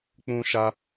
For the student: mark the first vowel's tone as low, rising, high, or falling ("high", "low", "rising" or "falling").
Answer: high